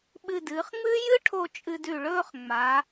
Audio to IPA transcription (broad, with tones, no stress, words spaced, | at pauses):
ɓɨ˧˩dɨː˩˧χŋ͡mɨː˥ jɨ˥ʈʰo˧ t͡ʃʼɨ˧dʉ˧˩ɭɵː˥˧χ ŋ͡ma˩˧